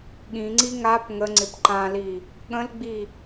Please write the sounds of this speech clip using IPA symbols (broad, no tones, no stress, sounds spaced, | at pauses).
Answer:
ɠ ĩ ŋ͡ǀ i ŋ a p ŋ ə ŋ͡ǀ ɪ p ǃ ã l i | ɠ ə̃ l ɡ͡b i